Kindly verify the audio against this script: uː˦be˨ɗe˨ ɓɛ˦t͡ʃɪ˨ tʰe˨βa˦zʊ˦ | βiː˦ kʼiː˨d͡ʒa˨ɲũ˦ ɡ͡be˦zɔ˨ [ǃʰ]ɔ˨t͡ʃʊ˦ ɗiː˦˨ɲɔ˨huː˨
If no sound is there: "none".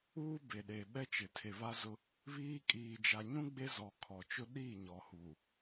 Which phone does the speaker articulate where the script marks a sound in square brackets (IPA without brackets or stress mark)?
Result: kʰ